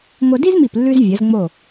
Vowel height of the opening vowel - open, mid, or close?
open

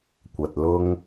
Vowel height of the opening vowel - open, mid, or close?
open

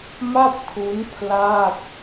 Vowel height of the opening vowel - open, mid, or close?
open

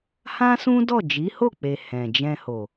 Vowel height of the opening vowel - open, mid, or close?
open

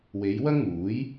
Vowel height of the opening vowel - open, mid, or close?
mid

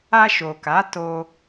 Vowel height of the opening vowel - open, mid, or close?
open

